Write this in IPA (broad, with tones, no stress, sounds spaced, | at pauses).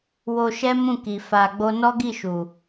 w o˧ ʃ ɛ˦ m ũ˦˨ k i˨ f a˧ ɡ͡b o˦ n ɔ˦ ɡ i˦˨ ʃ u˨